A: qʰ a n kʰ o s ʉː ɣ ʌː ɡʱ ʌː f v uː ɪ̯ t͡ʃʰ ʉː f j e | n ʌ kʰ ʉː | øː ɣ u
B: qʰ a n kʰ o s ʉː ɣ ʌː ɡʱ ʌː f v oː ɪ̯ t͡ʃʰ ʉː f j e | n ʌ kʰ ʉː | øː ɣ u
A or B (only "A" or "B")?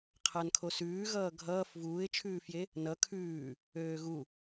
A